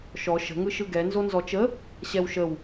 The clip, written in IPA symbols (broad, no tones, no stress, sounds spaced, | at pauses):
ʃ ɔ ʃ ə̤ ŋ ɯ ʃ ɯ ɡ ɛ n z o n z ɔ t͡ʃ ə | ɕ ɛ w ʃ ə w